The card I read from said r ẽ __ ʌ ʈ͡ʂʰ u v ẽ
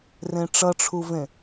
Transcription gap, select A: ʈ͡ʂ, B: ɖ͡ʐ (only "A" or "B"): A